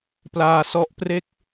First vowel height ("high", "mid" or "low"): low